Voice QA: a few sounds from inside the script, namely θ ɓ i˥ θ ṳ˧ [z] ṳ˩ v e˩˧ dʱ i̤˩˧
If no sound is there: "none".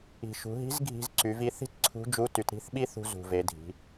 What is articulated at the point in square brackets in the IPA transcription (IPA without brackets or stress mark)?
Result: z